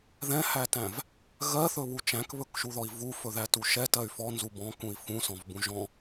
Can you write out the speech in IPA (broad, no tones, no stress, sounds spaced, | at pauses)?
ð ɛ̃ h æ t æ̃ v | ɣ ɜ θ ɵ β u t͡ʃ æ̃ k β ɵ k ʃ u ð ɔ i̯ v u f ɵ ð æ t u ʃ ɛ t ɜ y̯ f ɔ n z u b ɔ̃ k ũ i̯ f ũ s ɔ̃ v b ũ ʒ ɔ̃